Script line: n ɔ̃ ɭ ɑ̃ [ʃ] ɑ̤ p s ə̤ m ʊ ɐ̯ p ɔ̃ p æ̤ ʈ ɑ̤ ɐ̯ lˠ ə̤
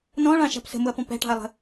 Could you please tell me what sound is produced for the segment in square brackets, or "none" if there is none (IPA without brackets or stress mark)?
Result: ʃ